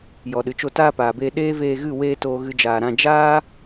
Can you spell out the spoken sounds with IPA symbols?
j ɔ˨ ɗ ɨ˨ t͡ʃ o˧ t aː˦ p aː˨ b eː˧ ɗ eː˦ v eː˧ ɣ ɨ˦˨ w eː˦ t oː˧ ɣ ɨ˧ d͡ʒ aː˨ ɾ ã˧ d͡ʒ aː˦

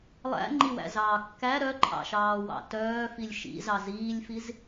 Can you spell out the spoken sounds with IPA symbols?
lˠ æ̰ ŋ͡ǃ i w æ̰ z ɑː kː æ ɾ œ ǃʰ ɑ̰ ʃ ɑː w ɑ̰ t œː f i lʲ ʃ ḭ z ɑ z iː lʲ f i z

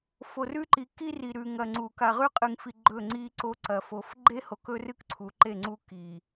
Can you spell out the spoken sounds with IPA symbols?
f o˨ r ʉ˦ ǃ i˨ k i˦ r i˨ ɾ ʉ˨ ŋ ɐ˨ ŋ͡ǀ u˨ k a˨ ʁ ʉ˦ qʼ ɨ˨ ŋ f i˨ ɡ͡ǃ ɵ˦˨ ŋ͡ǀ i˦ ǀ o˦ ǀ ɐ˨ f o˨˦ f ɡ͡ǃ e˦ h o˨ k ɵ˦ r ɨ˦ k ǀʰ u˨˦ ǃ e˦˨ ŋ͡ǀ u˦ k i˨

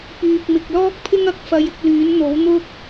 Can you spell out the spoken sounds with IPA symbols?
p yː˨ k̚ m ɪ˨ k̚ l ɔː˥ k̚ pʰ ɪ˥ ŋ ɐ˧ k̚ f ɐ˧ j ɪ˧ k̚ l yː˨˥ n n̪ o˨˥ w n̪ ʊ˥ k̚

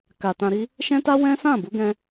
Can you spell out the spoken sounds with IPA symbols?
k a˨ t ã˧ ɾ i˦ | ʃ ɛ̃˦ t a˦ w ɛ̃˦ s ã˦˨ b u˨˦ ɡ ɛ̃˧

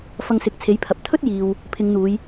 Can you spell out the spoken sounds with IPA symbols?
f ɐ˧ ŋ s ɪ˨˥ k̚ t͡sʰ e˨˥ j pʰ ɐ˨ p̚ t̪ʰ ɵ˥ t̚ j iː˨ w | pʰ ɪ˨˧ ŋ n̪ uː˨˧ j

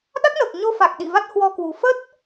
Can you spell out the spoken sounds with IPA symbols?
ɗ a˦˥ k̚ n əː˨˩ k̚ ɲ o˧ f a˨˩ k̚ ɗ ḭ˧˨ v a˦˥ t̚ h w ɔ˧ k w u˨˩ f ə˦˥ t̚

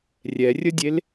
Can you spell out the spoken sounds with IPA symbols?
rʲ ɛ rʲ ə dʲ e l

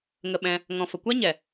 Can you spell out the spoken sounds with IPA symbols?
ŋ ə˧ ɓ ɛ̃˧ | ŋ ɔ̃˨ f ə˨ kʷ a˦ ɲ ɛ˨

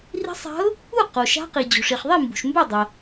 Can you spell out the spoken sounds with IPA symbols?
r i̤˧˥ sˤ a̤˧˥ ʊ̯ | u˥˩ q o˩ ʃ a̤˧˥ q i˩ d͡ʑ o̤˩ ʂ i˩ χ ðˤ i˥˩ m b ṳ˩ ʃ m b ɵ˥˩ dˤ ɐ˩

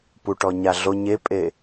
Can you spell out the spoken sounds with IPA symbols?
p u ʈ ɔ ɲ a ɮ o ɲ e pʼ e

